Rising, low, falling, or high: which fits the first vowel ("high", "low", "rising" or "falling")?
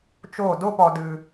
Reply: falling